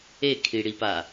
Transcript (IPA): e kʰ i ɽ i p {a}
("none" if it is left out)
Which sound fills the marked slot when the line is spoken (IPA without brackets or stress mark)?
a